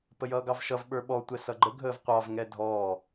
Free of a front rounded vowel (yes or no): yes